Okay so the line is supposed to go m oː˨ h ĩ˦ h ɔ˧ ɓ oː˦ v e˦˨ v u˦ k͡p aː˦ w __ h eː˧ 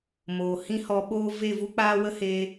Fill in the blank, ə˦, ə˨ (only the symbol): ə˦